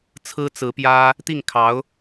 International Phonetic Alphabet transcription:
t͡sʰɹ̩˥t͡sɹ̩˧˥pjä˥ | t̪i˥˩ŋkʰɑ˧˥ʊ̯

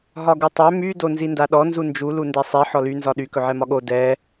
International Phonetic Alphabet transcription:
ɦɒɡutˤœ my donzindaɗɔ nzund͡ʒu lundɛsˤi ħɔly nzɒɗy kɵʕɛmɒɠo dɛ

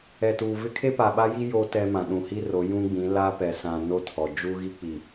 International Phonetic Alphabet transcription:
ɛ˨tuː˨vɪ˦ kʰe˦pa˨ɓa˦ji˦ jo˦ tɛ˦mã˨ ɗũ˨hi˦ro˨˦ jũ˦ɡ͡bĩ˨˦ la˦pɛ˨sã˨ no˦tʰɔ˨ d͡ʒu˦ɣi˦k͡pi˨

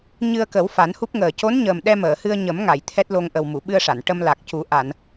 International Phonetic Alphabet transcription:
ɲɨ˧ə̯kə˨˩˦w fa˨˩˦nhu˦˥p̚ŋəː˨˩ co˧˥nɲəː˨˩m ɗɛ˧məː˨˩˨hɨ˧ə̯ ɲə˨˩˦mŋa˨˩˨j t̪ʰɛ˦˥t̚lo˧ŋʔə˨˩w mu˨˩˨ɓɨ˧ə̯ʂa˨˩˨n ʈə˧m la˨˩k̚cu˨˩˦ ʔa˨˩˨n

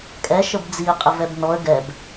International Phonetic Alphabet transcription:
kʼɛ ʃəbd͡ziə̯ qʼəvɛbnɔə̯ ɡɛb

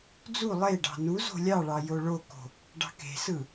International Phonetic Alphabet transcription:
d͡zu lˠeɖɑ̤ nu zo̤lʲɑɭɑ joɭoko̤ | ɖɑ̤ke̤sɯ

